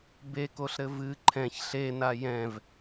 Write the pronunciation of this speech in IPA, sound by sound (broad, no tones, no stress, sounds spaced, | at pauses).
b e k o ɬ ɾ ɘ v ɨ ǃʰ ɛ̃ ç ɬ e n a j ɛ̃ v